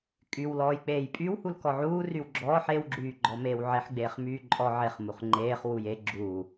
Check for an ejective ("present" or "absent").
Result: present